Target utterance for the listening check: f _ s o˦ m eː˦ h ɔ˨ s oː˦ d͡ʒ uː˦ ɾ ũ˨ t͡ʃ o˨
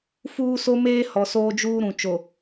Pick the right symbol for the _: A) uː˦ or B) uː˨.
A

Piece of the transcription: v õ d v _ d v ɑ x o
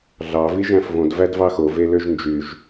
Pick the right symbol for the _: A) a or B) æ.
B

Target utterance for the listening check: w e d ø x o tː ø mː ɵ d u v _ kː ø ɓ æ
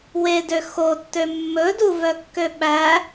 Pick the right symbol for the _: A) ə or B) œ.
B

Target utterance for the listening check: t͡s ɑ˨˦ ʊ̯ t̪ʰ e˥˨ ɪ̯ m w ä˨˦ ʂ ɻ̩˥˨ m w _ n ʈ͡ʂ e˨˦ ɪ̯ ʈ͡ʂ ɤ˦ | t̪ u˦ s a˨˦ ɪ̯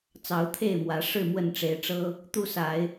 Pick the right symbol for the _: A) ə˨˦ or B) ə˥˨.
B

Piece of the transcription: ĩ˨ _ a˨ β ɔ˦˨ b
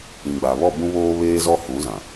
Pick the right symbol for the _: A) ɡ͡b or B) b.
A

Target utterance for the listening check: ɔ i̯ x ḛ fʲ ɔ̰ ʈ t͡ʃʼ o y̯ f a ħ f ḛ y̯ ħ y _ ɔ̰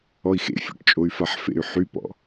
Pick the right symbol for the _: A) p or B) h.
A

